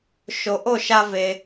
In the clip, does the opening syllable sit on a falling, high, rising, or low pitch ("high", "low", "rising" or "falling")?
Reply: low